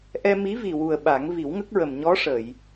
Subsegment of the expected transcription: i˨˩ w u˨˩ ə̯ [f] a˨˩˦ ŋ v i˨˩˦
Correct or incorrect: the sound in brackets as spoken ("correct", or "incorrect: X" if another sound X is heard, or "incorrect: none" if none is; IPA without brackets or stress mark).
incorrect: ɓ